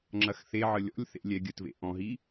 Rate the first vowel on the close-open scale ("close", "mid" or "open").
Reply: open